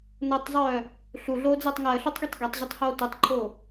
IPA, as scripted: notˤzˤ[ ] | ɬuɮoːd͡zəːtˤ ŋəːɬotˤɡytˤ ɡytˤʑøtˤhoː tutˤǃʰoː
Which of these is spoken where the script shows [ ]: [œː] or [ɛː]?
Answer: œː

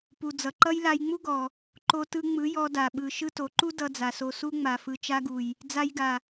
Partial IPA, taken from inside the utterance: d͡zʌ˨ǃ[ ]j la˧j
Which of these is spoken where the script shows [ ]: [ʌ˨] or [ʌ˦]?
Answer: ʌ˦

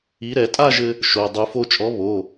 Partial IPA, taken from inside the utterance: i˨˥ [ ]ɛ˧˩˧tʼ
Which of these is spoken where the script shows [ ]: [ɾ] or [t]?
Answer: ɾ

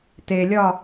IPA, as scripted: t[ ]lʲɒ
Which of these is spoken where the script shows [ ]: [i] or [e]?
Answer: e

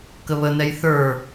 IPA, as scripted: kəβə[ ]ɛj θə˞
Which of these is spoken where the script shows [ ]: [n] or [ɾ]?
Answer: n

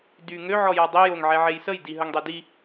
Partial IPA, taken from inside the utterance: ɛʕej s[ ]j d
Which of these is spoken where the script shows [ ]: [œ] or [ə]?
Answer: ə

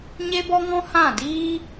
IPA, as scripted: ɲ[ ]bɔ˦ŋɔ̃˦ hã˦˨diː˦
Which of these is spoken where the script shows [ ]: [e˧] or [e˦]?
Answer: e˦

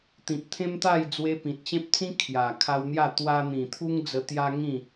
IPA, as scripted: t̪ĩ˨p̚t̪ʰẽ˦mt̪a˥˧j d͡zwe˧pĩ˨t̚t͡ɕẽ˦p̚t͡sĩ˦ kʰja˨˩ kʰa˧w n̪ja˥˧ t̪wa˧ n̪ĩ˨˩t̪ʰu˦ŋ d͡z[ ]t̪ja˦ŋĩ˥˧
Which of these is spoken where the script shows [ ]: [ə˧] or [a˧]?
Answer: ə˧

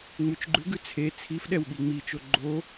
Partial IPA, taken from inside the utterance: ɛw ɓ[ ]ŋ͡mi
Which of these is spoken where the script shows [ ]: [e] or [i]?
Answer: i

